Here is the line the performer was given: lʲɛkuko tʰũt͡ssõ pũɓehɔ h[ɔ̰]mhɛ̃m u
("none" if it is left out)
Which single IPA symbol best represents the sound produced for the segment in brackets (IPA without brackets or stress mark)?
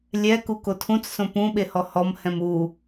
ɔ